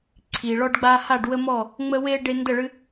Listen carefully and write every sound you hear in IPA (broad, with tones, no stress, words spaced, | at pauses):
ǀʰi˩ɭɔ˦ɖɡ͡ba˦ ha˥˩ɖwə˦mɔ˥˩ | ŋ͡mə˦we˦ ɖe˦ ndə˥˩ɭɨ˦